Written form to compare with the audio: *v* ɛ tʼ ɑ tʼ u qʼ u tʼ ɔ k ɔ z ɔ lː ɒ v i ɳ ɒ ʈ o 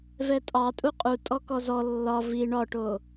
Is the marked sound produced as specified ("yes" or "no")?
yes